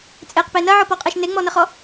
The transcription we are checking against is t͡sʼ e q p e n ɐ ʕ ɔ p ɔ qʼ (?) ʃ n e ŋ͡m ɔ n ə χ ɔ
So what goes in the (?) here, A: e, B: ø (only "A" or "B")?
A